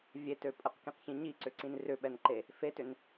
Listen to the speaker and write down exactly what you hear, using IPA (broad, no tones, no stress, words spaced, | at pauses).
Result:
vʲetø pʼəqkĩqçĩ ɲiǀʏǀĩn rʏɓɛnǃe | fetʏn